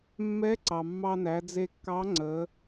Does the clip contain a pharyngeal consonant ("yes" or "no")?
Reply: no